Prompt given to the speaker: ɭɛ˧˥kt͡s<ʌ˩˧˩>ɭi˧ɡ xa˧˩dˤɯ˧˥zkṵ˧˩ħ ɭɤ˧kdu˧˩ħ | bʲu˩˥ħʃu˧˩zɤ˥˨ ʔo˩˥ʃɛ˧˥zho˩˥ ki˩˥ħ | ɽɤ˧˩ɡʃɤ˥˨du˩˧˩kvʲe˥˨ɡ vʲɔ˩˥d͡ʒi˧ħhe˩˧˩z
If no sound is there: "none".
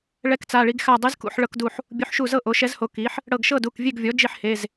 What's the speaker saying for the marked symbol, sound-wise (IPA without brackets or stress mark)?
a˩˧˩